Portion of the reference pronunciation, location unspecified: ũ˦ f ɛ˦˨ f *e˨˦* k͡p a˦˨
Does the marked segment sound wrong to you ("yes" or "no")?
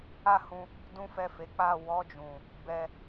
no